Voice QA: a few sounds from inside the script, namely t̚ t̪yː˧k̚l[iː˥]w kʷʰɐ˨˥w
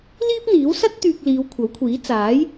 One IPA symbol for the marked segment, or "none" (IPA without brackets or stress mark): iː˨˧